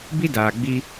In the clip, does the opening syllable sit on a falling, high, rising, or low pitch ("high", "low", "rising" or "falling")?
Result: high